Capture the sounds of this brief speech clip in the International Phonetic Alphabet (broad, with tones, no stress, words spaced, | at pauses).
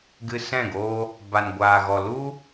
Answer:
ɡɨ˧sɛ̃˦˨ɡoː˦ | ba˨nɡʷaː˨ɣɔ˨lu˦